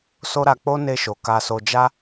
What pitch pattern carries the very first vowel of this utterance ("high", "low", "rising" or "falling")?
high